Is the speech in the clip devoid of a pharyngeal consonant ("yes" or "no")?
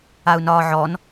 no